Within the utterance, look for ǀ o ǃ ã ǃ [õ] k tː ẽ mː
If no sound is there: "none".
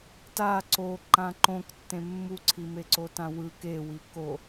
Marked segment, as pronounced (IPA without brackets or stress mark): õ